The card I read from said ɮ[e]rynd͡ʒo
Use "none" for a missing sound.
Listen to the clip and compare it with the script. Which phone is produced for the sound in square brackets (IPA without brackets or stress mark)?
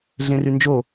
ẽ